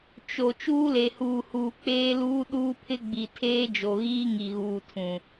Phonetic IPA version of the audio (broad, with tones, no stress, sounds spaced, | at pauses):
t͡ʃ o˨ t͡ʃ uː˦ l e˨ h uː˨ h uː˨ k͡p eː˦ l uː˦ ɗ uː˦ pʰ ɪ˦ ɡ͡b i˨ tʰ eː˦ d͡ʒ o˨ ɣ iː˦ ŋ i˨ ɣ uː˨ tʰ ũ˨